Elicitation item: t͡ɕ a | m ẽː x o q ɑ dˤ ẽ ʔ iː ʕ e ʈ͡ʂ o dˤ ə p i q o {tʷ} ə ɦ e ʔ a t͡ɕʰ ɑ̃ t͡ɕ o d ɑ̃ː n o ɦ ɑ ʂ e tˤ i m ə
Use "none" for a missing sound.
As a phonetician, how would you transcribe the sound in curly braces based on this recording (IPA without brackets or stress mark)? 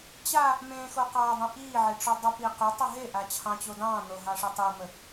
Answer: tˤ